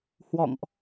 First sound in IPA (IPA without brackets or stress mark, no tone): h